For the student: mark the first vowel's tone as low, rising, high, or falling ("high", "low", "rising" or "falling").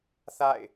falling